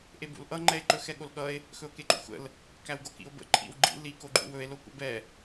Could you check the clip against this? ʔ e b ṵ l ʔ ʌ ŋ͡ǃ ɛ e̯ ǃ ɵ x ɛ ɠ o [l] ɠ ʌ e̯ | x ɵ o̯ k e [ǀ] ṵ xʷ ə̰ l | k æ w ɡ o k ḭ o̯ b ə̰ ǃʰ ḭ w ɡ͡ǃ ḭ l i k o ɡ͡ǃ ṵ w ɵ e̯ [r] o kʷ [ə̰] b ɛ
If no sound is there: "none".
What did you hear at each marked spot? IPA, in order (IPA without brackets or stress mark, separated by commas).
l, ǃ, l, ə̰